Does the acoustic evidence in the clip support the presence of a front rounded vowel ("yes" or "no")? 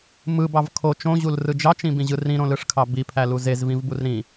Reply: no